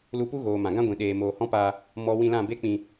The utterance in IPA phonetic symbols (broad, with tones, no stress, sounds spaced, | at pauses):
l u˧ p u˦ ɣ oː˨ m ã˨ ɡ ã˦ ɡʷ ĩ˨ ɗ eː˨ m oː˨ h ɔ̃˦ p aː˧ | m ɔ˦ w ĩ˧ l ã˦˨ b e˦ k͡p ĩ˧